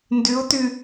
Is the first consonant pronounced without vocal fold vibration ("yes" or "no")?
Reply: no